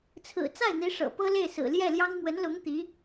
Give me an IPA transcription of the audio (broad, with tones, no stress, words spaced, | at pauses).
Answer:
t͡sʰɹ̩˨˩ t͡sa˥˩ɪ̯n̪i˧˥ ʂɤ̰˨˩ pɤ˥le˥˩ɪ̯ sɹ̩˨˩ljɛ˥˩ljɑ˥ŋ mwə˧˥nlʊ˧˥ŋ t̪i˧˥